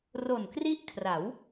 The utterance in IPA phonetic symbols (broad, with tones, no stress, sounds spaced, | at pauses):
r o˨˩ n k r i˥˩ ʔ kʰ r a˩˦ w